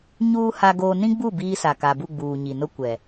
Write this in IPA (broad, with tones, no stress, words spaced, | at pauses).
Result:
ɲuː˦ ha˦ɡoː˦ nĩ˦ɡ͡bu˦˨ biː˦sa˨ ka˨bu˦˨ ɡ͡buː˨ ɲi˨nʊ˦ kʷɛ˨